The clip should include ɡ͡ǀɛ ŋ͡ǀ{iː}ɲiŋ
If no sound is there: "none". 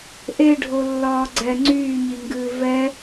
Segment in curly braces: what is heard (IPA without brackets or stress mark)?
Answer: yː